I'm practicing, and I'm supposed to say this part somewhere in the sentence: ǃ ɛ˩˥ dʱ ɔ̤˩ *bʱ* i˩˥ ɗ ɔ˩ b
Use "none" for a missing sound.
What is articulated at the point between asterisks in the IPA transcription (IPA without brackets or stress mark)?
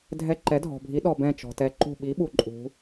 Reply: bʱ